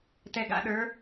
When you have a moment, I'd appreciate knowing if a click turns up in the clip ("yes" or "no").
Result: no